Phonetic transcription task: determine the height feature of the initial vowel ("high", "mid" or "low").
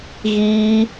high